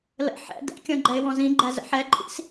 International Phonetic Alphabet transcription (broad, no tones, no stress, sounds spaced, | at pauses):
l ə̰ ħ ɛ̰ d ɛ̰ kʲ ɔ̃ ɡ͡ǃ ɛ ɪ̯ w ɔ̃ z ĩ ɡ͡ǃ æ z ə̰ ħ ɛ ǃʼ ḭ s